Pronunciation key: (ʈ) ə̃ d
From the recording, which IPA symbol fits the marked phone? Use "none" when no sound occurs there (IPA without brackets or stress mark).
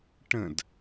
ʈ